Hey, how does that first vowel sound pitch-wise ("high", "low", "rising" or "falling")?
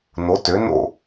rising